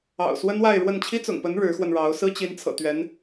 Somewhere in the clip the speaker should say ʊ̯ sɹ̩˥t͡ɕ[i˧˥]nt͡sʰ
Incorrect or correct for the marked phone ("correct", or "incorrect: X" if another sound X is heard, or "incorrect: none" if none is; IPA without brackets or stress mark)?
correct